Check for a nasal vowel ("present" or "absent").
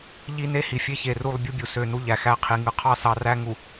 absent